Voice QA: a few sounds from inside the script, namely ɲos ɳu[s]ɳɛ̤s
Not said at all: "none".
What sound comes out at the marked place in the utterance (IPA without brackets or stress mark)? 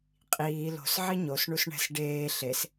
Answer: s